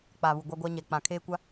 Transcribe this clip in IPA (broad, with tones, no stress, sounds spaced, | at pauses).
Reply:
k͡p a˨ β u˨ ɡʷ a˦ ɡʷ a˦ ɲ ɛ˨ k͡p ã˨ kʰ eː˦ kʷ a˦